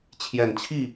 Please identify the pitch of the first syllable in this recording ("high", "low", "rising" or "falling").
low